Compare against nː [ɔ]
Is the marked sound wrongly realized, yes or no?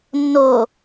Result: yes